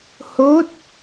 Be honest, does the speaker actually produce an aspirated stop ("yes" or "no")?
no